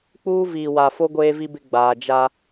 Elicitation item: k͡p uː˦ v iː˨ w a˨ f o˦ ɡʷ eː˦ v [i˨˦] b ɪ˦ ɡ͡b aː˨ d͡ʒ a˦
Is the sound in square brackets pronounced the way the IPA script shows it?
no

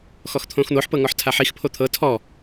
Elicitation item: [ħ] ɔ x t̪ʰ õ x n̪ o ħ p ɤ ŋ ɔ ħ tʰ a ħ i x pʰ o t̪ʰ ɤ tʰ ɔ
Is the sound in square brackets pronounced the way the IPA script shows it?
no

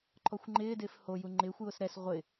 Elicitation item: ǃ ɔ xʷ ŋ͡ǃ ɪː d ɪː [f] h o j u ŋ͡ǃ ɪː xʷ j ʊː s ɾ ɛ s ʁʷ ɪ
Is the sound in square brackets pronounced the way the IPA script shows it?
yes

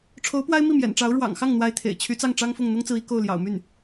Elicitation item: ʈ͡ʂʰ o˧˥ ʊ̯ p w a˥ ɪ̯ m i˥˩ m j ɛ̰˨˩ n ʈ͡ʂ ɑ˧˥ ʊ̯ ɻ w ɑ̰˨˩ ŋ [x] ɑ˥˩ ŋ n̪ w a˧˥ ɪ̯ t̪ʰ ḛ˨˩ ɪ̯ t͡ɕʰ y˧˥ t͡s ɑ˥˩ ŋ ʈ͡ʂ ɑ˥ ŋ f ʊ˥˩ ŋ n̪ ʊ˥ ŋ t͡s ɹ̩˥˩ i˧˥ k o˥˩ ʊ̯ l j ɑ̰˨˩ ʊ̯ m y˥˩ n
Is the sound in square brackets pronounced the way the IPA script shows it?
yes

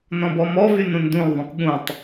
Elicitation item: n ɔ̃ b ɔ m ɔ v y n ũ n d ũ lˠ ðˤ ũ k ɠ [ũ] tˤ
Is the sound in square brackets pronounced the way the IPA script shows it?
yes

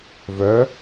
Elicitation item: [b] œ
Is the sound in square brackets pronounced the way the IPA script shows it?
no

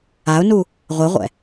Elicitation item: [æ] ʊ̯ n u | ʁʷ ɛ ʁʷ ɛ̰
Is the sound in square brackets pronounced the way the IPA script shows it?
no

